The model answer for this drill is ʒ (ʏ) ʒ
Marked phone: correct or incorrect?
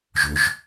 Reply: correct